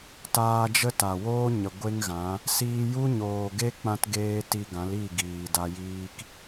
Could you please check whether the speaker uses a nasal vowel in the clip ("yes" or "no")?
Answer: yes